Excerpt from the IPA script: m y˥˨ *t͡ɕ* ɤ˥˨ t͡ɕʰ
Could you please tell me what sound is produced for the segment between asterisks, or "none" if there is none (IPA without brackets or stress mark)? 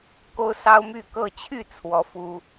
k